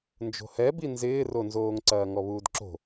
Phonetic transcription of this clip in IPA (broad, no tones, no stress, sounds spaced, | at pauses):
n d͡ʒ o̤ h ɛ b i n z ɪː r o n z oː ŋ ǀ ɐː ŋ ɔ β uː d ǁ o̤